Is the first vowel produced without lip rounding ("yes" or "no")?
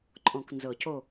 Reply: no